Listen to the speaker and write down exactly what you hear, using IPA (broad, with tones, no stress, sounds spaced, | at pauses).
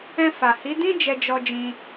ɛ̃˧ f a˨ h i˨˦ d ĩ˦ d͡ʒ ɛ˧ d͡ʒ ɔ˧ d͡ʒ ĩ˧